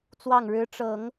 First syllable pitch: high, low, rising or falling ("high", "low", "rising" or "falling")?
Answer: falling